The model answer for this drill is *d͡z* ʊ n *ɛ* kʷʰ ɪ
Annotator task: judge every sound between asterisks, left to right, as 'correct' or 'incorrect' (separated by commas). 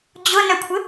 incorrect, incorrect